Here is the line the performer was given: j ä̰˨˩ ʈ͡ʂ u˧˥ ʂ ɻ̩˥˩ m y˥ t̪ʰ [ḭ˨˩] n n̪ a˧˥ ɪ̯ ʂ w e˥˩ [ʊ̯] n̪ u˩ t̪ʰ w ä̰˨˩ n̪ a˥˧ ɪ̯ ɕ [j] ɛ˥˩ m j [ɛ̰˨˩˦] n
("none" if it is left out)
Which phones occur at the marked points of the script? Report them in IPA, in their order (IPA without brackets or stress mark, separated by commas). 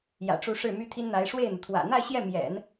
i˥, ɪ̯, j, ɛ̰˨˩˦